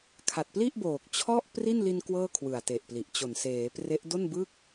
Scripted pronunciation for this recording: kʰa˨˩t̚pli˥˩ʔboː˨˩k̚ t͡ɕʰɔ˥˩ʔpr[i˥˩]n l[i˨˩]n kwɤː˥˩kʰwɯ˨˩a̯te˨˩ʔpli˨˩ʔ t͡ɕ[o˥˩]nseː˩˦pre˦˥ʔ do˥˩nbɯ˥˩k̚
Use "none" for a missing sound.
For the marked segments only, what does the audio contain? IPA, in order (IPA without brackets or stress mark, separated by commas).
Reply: i˥˩, i˧, o˨˩